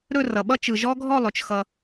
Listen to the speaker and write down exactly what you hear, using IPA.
ɾ ɵ˥˨ r ʌ˩ ɓ ʌ˦˥ t͡ʃ ɯ˩ ʒ ɔ˦˥ ɡʱ ɔ˥˨ lˠ ɵ˩ t͡ʃ x ʌ˩

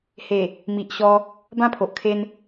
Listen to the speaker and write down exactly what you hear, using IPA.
h e˨˩ | m i˨ ʔ ɕ ɔ˧ | b ã˥˧ pʰ o˨ ʔ kʰ e˧ n

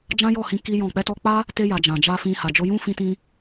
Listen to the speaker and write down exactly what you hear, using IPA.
d͡ʒ ã˦ j ɔ˦˨ h ĩ˧ k i˦ j ɔ̃˦˨ k͡p ɛ˧ t ɔ˧ k͡p a˦ | t e˧ j a˨ d͡ʒ ã˨ d͡ʒ a˧ f ĩ˧ h a˨ d͡ʒ o˧ j ũ˦ f ĩ˦ t ĩ˦

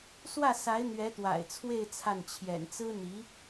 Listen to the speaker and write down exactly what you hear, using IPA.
s w ä˥˩ s a˧˥ ɪ̯ n̪ ɥ ɛ˧˥ t̪ w a̰˨˩ ɪ̯ t͡sʰ w e˥˧ ɪ̯ t͡sʰ a˥˩ n t͡ɕʰ j ɛ̰˨˩ n t͡s ɹ̩˥ n̪ i˧˥

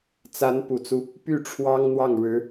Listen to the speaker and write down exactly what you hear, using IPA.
t͡s a˧˥ n p u˨˩ t͡s u˦ | p y˥˩ ʈ͡ʂʰ w ɑ˥ ŋ n̪ w ɑ˥˩ ŋ ɻ ɻ̩˧˥

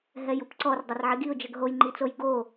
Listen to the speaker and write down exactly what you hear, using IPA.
ɦ ɛ j u p ǀ ɔ r dˤ ɐ r ʕ i ɡ i ʊ̯ d͡ʒ ə ɡ ɦ o j ŋ͡ǃ i t͡s o j ɡ o

